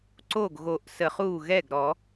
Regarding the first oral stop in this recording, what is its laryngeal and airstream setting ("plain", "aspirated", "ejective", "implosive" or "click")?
click